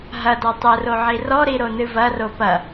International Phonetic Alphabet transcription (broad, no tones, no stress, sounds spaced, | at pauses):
ɦ ɐ d a tˤ ɘ r o ʕ i r ɔ ɾ i ɾ o n ɨ v ɐ r o p ɐ